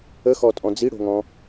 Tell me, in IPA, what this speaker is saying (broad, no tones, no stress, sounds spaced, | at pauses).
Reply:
ə x ɔ tʼ ɔ̃ d͡z i ɽ o̤ ŋ ɔ̃